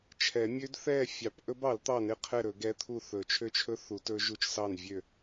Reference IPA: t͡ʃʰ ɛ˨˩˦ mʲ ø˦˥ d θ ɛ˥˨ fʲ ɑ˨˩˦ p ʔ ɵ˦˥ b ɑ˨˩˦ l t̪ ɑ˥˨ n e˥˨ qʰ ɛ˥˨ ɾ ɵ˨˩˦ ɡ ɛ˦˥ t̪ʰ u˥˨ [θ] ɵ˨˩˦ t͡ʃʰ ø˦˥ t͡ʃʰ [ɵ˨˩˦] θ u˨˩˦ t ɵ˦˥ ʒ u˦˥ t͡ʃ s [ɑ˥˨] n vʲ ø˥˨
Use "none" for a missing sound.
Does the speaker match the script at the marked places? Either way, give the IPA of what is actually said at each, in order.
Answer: θ, ɵ˦˥, ɑ˥˨

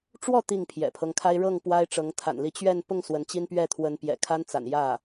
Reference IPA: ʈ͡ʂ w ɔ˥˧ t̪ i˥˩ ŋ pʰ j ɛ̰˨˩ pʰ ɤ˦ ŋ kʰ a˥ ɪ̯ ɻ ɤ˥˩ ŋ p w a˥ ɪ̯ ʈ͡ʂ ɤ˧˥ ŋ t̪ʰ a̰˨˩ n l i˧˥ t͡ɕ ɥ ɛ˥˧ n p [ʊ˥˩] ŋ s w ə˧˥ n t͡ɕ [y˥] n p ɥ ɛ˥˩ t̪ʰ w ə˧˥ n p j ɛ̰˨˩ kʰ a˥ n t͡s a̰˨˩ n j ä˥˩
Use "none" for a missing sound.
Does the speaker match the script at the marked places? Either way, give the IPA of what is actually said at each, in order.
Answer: ʊ˥˩, i˥

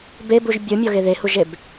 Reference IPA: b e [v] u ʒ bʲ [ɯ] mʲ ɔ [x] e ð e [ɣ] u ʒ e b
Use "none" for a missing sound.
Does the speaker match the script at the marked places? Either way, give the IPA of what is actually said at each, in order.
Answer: b, ɯ, ɣ, h

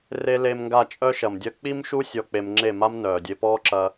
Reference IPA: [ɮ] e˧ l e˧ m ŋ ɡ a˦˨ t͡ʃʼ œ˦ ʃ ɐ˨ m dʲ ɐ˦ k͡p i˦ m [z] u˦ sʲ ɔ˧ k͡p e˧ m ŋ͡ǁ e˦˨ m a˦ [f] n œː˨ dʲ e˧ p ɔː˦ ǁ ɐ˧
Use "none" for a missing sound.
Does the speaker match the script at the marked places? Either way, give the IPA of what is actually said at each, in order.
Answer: r, ʃ, m

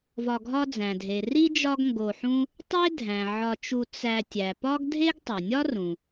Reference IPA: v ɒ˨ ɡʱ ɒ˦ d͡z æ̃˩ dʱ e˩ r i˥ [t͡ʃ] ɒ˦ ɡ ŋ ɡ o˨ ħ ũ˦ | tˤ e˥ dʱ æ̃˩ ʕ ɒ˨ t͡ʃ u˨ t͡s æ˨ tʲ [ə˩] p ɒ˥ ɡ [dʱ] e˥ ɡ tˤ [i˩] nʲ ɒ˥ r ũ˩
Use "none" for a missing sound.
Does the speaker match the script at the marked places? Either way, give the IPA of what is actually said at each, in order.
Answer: d͡ʒ, æ˩, dʱ, e˩

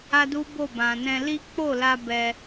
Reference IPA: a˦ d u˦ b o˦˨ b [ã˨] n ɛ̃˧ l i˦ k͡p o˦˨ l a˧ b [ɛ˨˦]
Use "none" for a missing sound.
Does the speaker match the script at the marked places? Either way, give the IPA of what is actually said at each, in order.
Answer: ã˨, ɛ˧

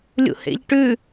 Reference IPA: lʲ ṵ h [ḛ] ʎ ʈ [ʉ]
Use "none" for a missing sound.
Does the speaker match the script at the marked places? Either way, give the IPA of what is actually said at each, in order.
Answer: ḛ, ʉ

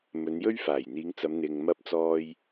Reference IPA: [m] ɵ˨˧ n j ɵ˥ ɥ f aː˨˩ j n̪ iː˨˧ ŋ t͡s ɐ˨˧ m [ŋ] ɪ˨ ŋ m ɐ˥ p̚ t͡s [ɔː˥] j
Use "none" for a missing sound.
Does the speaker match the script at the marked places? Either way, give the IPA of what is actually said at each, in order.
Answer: m, n̪, ɔː˥

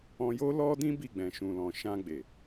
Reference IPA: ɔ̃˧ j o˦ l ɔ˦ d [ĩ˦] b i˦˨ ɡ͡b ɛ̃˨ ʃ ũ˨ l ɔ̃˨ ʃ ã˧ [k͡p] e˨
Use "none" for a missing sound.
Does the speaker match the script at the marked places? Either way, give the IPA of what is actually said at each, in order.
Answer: ĩ˦, ɡ͡b

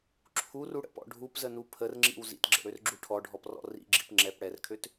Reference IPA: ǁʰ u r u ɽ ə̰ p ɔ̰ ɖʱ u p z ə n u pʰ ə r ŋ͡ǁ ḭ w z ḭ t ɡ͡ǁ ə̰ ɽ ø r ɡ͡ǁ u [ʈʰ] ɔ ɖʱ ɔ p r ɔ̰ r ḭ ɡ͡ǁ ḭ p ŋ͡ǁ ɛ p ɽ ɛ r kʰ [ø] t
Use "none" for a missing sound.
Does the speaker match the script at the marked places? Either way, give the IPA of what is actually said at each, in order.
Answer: ʈʰ, ø

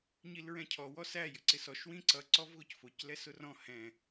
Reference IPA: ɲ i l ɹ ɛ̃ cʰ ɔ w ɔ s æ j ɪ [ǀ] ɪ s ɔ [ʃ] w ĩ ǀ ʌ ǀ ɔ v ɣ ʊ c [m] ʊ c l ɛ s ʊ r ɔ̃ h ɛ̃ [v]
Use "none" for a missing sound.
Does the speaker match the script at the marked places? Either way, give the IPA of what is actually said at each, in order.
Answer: ǀ, ʃ, f, none

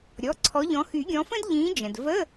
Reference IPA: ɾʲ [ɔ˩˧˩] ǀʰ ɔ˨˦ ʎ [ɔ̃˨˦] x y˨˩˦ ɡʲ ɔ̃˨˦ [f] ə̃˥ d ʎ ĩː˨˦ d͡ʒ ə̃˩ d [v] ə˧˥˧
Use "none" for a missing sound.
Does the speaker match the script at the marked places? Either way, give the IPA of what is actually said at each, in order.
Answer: ɔ˩˧˩, ɔ̃˨˦, f, v

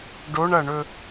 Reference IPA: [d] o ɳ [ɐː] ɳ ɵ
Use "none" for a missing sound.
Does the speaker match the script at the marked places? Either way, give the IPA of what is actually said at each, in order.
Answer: ɖ, ɐ

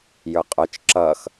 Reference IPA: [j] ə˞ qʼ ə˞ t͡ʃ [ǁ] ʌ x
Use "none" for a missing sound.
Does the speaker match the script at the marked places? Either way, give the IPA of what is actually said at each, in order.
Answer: j, ǁ

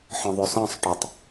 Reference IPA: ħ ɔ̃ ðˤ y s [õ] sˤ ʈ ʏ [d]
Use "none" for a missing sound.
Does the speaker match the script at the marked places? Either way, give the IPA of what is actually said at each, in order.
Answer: ɔ̃, tˤ

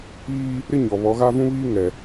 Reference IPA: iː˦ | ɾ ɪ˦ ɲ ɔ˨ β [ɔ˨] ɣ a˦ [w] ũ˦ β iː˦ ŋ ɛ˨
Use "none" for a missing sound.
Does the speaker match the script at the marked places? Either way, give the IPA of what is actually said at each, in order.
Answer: ɔ˨˦, v

